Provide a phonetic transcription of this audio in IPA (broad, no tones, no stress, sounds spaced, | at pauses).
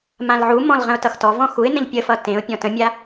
m ã l ʕ u m ɔ̃ l ʁ ə̃ ʊ̯ t ʌ x t ɔ v ɔ̃ x u ɪ̯ n ə̃ ʎ pʲ ə f ʌ t ẽ ʊ̯ pʲ ɔ̃ t ə̃ mʲ a